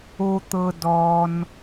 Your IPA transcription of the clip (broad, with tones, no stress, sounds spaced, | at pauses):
o˧ t̪ ɤ˧ d ɔ˧ n